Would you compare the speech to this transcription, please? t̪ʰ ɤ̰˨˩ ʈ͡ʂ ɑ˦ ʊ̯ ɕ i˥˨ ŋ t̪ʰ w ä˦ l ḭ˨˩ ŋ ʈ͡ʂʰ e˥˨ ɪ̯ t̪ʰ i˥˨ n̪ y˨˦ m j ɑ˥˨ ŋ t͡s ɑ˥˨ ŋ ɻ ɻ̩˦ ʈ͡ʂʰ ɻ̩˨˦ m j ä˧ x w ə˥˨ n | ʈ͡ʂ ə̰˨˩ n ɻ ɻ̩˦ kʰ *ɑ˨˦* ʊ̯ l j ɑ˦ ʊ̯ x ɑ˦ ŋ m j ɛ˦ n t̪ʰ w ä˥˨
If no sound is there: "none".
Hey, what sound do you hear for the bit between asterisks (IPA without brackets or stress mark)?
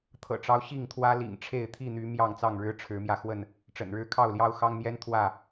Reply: ɑ˥˨